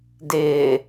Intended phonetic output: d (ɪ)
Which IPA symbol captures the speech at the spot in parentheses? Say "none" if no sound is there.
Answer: ɪː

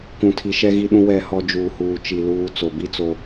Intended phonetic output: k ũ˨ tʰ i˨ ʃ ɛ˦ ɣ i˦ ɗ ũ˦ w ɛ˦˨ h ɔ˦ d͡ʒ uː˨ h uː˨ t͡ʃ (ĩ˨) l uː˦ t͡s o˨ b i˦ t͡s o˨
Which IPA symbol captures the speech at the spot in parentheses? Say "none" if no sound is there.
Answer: i˨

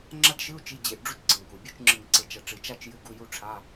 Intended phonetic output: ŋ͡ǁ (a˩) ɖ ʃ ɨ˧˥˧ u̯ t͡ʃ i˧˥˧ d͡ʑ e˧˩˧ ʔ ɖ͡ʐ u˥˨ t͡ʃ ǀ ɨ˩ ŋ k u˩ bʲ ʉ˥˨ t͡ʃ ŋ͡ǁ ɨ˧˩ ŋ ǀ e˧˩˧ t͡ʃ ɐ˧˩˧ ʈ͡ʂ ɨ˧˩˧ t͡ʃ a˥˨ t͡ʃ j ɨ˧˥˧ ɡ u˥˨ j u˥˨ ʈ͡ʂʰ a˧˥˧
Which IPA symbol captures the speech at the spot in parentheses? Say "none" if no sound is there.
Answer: a˥˨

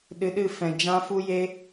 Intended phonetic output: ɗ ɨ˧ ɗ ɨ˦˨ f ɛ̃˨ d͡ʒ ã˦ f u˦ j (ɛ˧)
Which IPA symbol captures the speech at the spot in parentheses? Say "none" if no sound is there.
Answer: e˧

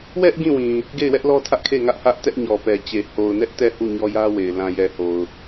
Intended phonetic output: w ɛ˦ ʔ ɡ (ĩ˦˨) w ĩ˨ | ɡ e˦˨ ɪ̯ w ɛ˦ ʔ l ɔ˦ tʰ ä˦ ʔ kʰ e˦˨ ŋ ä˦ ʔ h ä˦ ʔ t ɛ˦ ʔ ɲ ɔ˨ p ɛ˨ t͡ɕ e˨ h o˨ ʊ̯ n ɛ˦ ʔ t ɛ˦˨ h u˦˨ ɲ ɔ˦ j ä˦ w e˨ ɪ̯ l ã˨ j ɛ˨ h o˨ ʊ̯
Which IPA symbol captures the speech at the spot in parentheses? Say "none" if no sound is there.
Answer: ĩ˦˨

